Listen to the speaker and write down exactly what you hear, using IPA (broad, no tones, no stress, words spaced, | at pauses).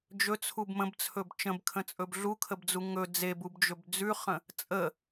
d͡ʒɵt͡sʰub mə̃bt͡sʰɵb t͡ʃə̃bkʰə̃t͡sʼɵb ɮukʰəbd͡zu ŋɵ d͡zebubd͡ʒɵb d͡zʉχə̃ | t͡sʼə